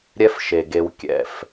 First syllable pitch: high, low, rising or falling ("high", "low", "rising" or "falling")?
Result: high